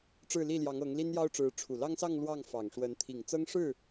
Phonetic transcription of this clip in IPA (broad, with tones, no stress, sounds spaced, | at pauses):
ʈ͡ʂ ɻ̩˥˧ l i˥˩ l j ɑ˧˥ ŋ ɤ˧˥ ŋ l i˥ n j ɑ˥ ʊ̯ ʈ͡ʂ ɻ̩˧˥ ʈ͡ʂʰ u˨˩ l ɑ˥ ŋ s ɑ˥˧ ŋ l w ɑ˥˩ ŋ f ɑ˨˩ ŋ ʂ w ə˧˥ n t̪ʰ i˨˩ ŋ t͡s ɤ˥ ŋ ʂ ɻ̩˥˩